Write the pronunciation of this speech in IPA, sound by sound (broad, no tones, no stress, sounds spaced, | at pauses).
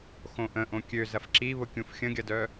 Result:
x õ ʔ ə̃ ʔ õ kʲ ø z ɐ f ǁ i β ʊ kʲ ũ f xʲ ə̃ ɡʲ ɐ d œ